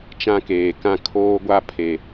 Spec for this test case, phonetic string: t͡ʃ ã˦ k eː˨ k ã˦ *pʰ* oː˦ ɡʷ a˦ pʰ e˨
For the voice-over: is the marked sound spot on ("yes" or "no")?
no